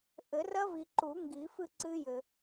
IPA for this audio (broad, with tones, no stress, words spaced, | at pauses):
ʔɘ˨˩˦rɐ˦˥vi˨ ǃu˨˩˦ ŋɡi˨˩˦fɨ˥˨ǀɨ˦˥jɘ˨